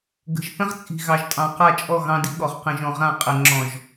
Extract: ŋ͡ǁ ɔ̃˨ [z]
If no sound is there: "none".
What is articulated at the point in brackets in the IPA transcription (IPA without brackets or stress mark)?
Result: ʒ